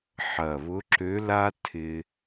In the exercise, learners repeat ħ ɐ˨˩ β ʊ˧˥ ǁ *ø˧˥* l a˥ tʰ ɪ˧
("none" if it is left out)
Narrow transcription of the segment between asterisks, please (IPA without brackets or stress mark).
ø˧˥